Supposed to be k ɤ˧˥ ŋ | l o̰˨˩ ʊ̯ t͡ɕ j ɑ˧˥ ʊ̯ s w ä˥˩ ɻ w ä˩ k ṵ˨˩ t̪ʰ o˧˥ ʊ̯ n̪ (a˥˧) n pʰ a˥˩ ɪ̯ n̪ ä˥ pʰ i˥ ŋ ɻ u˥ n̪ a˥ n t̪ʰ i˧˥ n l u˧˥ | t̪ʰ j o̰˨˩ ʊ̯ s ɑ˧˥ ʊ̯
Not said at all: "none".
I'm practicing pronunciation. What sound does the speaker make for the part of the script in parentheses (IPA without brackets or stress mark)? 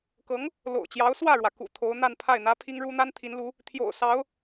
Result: a˥˧